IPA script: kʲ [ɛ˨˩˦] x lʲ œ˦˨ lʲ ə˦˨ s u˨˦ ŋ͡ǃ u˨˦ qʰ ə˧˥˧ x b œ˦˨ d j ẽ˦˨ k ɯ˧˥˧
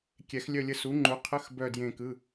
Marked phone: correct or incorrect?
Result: correct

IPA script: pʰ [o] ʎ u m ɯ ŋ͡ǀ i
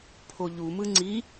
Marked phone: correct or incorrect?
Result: correct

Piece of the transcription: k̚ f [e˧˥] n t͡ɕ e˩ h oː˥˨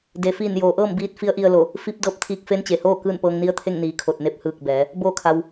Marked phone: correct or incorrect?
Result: correct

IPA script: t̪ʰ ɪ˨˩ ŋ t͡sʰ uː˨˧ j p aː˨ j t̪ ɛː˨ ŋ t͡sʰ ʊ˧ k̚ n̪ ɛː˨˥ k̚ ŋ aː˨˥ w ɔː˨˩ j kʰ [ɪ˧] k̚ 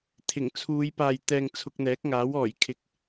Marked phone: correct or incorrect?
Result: incorrect: ɪ˨˥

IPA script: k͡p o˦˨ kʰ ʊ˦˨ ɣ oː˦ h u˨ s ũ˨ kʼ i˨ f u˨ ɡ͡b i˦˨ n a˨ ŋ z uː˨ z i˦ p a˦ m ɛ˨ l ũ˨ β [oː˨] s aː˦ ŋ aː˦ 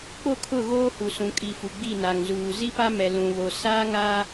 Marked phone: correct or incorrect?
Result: incorrect: o˨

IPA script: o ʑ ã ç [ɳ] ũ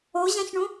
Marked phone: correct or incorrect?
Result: correct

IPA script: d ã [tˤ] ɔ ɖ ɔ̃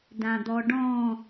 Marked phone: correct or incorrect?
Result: incorrect: d̪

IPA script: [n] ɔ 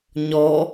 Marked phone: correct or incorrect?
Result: incorrect: ɲ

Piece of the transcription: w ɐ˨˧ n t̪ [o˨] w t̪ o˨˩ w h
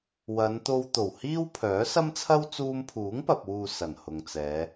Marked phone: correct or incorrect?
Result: incorrect: o˧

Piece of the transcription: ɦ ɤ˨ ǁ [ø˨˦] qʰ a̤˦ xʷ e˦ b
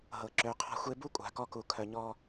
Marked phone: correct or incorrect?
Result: correct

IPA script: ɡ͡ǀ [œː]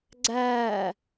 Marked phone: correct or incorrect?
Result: incorrect: æː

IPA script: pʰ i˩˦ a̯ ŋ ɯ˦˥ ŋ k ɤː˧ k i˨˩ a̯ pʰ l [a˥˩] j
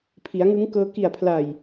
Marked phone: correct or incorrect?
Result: incorrect: a˨˩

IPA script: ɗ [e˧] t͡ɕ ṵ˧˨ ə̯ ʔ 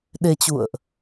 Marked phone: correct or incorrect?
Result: correct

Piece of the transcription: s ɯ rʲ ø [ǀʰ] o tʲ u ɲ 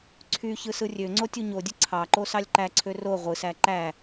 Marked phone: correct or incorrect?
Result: incorrect: ŋ͡ǀ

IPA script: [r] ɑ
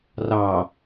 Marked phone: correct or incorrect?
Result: correct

